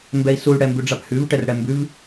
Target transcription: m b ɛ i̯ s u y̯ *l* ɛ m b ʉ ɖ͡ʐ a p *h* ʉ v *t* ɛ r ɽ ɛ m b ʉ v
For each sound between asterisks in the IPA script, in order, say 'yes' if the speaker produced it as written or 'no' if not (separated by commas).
no, yes, no